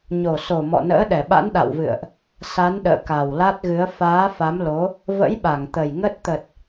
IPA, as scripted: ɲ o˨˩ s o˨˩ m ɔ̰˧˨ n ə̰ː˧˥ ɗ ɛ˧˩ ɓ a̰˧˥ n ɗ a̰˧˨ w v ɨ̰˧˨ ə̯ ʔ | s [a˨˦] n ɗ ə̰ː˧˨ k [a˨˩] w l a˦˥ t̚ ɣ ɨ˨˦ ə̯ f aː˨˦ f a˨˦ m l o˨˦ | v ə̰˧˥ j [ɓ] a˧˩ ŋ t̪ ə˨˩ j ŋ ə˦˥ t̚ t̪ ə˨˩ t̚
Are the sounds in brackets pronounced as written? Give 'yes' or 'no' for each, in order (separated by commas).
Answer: yes, yes, yes